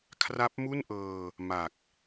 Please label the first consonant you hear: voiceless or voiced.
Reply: voiceless